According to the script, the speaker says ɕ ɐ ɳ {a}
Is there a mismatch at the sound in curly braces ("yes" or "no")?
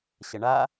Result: no